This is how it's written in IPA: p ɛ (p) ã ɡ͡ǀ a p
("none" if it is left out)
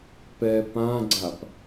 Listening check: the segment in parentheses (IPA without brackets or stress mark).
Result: p